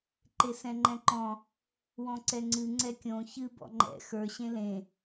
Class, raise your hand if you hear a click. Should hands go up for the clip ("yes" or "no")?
yes